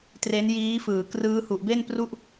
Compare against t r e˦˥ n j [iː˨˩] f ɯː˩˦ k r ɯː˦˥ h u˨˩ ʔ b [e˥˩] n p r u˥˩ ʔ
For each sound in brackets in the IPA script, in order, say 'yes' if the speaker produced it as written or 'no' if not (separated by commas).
no, yes